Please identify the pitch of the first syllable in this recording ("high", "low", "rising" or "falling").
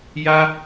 high